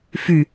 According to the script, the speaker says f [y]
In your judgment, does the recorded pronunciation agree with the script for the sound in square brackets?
yes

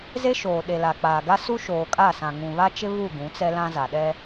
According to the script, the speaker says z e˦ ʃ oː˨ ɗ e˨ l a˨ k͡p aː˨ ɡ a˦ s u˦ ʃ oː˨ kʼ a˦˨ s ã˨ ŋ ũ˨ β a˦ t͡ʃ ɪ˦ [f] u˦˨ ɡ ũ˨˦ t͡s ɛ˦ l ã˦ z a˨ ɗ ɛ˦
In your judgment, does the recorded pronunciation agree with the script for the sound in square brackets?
no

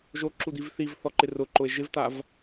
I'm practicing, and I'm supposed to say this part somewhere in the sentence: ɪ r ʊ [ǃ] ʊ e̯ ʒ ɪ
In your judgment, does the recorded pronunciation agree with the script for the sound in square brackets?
yes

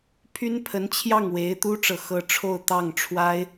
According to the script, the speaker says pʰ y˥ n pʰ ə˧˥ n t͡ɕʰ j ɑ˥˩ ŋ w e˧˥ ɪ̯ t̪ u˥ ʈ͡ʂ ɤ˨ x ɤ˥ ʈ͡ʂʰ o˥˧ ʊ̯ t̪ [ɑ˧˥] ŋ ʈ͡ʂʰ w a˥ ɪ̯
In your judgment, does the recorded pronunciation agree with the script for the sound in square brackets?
no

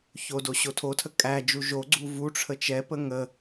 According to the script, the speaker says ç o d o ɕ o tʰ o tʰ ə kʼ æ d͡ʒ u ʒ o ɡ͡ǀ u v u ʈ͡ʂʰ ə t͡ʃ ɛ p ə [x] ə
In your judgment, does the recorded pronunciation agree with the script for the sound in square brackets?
no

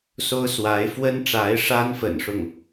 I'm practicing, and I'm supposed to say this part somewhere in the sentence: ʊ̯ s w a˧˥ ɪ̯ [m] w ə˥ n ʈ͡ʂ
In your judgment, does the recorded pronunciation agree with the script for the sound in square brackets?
no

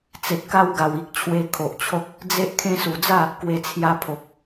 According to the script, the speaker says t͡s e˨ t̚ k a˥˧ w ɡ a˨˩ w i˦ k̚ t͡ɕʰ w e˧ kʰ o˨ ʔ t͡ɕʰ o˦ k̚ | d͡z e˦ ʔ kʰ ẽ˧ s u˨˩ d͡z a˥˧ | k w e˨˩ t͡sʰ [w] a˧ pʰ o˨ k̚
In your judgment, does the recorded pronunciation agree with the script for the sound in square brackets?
no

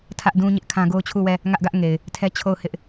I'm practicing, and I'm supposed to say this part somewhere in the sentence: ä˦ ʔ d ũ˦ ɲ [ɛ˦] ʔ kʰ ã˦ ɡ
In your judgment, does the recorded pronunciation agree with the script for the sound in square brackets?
no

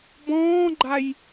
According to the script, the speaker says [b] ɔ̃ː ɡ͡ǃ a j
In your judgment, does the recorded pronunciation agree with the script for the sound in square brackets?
yes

